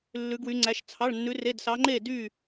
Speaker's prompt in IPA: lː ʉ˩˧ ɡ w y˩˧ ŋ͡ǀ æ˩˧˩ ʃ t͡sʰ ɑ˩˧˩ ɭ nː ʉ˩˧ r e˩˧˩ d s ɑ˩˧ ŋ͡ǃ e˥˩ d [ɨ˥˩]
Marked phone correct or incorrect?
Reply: incorrect